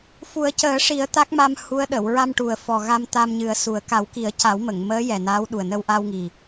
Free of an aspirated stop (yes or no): yes